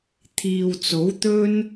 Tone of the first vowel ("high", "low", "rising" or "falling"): low